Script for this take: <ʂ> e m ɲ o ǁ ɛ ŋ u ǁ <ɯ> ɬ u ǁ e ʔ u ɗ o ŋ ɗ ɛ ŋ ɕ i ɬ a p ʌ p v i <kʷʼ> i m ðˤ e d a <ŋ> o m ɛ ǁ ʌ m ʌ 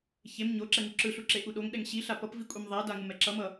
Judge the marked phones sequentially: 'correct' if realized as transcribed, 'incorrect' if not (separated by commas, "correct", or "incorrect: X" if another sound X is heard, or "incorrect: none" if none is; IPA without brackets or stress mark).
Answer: incorrect: ç, correct, correct, correct